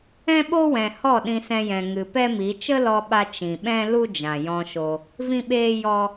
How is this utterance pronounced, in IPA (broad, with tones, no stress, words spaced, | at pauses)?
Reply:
ɛ̃˦ɓo˦wɛ̃˨ hɔ˦˨ɗĩ˧sɛ̃˧jɛ̃˨ ŋɨ˨pɛ˦mi˨˦ t͡ʃə˦lɔ˧ɓa˧ t͡ʃĩ˨ɓɛ̃˦ lu˦d͡ʒã˨ jɔ̃˧ʃo˧ | vĩ˦ɓeː˦jɔ˦